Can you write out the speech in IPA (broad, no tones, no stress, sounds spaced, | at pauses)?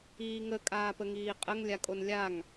iː ŋ ə kʼ aː p ə ŋ iː qʼ ə ŋ lʲ a kʼ o n lʲ a ŋ